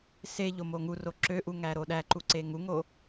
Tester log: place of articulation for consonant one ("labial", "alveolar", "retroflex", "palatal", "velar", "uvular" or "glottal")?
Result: alveolar